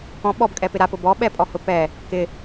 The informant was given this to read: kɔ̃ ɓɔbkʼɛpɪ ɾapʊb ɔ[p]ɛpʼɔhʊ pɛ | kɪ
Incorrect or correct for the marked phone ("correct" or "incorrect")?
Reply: incorrect